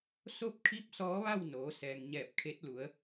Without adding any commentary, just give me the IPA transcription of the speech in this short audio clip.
s o˥˨ p̚ kʰ i˧˥ p̚ s ɔː˧˥ ʋ a˥˨ w n oː˩˧ s ɛː˩ ŋ ɲ ɛː˧˩ p̚ kʰ e˧˥ t̚ l u˩˧ ə̯

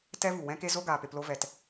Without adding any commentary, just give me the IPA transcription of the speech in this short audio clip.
t ɛ˦ v u˨ w ɛ̃˦ k e˦ z o˦ ɡ aː˨ p e˧ p l o˦ v ɛ˧ t

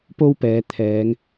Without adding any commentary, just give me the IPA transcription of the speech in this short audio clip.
p o˥ w p ɛː˨˧ t̪ʰ ɛː˨˧ ŋ

